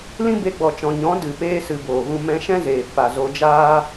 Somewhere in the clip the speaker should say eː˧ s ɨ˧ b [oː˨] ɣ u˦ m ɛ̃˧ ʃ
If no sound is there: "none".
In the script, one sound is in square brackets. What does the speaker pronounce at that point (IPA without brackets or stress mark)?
oː˨